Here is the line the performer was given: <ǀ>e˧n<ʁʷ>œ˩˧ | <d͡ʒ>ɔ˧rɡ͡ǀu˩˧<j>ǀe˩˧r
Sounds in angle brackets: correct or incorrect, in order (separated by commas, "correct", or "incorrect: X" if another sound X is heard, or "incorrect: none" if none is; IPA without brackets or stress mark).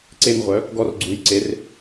correct, correct, incorrect: ɡ, correct